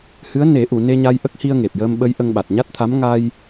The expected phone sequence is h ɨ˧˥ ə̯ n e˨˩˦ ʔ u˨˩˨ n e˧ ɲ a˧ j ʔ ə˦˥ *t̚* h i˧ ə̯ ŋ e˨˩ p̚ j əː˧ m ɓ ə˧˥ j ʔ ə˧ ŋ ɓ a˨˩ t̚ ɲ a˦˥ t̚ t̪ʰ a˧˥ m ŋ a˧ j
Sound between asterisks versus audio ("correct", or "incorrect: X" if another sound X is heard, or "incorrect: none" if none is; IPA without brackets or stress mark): incorrect: k̚